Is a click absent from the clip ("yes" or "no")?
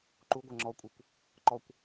no